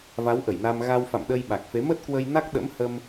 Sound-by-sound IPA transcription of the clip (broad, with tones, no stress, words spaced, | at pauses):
va˨˦wʔə˧˩jna˧m ɣa˧wfa̰˧˨mɗə˧j ɓa˨˩k̚fe˨˦ mə˦˥t̚kwə˧jna˦˥k̚ ɗə̰˧˥mhə˧m